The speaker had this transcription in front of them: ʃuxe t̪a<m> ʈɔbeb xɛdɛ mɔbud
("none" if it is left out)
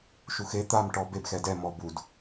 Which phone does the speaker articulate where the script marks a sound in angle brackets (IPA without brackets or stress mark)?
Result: m